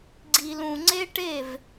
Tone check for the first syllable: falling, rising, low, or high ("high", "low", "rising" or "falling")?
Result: low